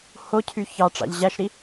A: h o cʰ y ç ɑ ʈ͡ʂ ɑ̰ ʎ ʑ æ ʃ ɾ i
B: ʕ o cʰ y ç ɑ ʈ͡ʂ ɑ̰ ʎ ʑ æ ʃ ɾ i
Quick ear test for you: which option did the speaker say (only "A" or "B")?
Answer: A